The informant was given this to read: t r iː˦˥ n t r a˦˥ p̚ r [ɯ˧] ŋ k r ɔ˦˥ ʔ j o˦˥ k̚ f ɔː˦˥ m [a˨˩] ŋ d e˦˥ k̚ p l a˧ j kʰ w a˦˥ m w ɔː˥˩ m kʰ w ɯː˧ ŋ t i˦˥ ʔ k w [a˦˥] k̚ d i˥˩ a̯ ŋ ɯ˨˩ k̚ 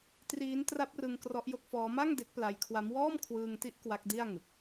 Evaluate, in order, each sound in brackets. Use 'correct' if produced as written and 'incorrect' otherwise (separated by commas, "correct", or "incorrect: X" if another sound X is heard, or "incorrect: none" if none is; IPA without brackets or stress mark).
correct, incorrect: a˥˩, correct